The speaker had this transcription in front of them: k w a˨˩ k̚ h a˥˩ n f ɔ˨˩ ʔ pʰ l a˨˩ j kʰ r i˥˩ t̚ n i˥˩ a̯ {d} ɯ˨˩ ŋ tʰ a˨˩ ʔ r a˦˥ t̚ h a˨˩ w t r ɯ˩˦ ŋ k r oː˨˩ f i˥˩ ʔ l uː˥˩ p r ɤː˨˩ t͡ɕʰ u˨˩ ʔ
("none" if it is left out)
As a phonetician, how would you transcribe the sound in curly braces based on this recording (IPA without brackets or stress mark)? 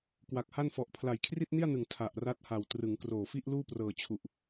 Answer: n